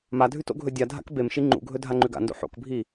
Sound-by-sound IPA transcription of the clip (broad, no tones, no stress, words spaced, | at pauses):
madʱʉt o̰ɡʱɵdʲadʱa̰k bemʃi ŋ͡ǃṵɡʱɵ dʱaŋ͡ǃʉɡa̰ndo̰ ħo̰kbʱi